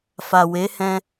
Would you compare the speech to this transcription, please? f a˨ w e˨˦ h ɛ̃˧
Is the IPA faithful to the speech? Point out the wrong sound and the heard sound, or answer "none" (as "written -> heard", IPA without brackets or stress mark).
none